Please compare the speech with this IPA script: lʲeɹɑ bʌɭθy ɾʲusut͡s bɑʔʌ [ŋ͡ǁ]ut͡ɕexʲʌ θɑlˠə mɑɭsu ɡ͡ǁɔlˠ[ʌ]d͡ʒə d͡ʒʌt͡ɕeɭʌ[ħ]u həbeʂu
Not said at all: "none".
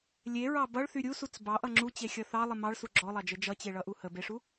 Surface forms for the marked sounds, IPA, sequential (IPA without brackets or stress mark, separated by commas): ŋ͡ǁ, ɑ, ʔ